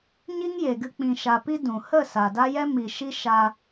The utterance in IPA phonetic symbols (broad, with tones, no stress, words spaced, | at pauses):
ɲi˦ŋje˨ɡɨ˧ k͡pĩ˨ʃa˨pi˧ dũ˨ hə˦˨ sa˨da˦jɛ˦ mi˨ʃi˦ʃa˧